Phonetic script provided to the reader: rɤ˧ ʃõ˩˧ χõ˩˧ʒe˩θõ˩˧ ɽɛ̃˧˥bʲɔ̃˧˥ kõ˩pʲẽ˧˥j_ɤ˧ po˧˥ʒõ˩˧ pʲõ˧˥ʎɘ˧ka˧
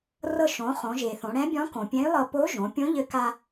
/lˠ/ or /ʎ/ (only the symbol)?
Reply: lˠ